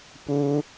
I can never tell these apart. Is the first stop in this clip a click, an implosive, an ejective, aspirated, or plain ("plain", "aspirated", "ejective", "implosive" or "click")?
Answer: plain